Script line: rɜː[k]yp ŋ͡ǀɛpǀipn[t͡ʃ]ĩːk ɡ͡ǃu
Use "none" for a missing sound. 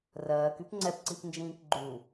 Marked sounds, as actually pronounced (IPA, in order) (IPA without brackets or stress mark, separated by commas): k, d͡ʒ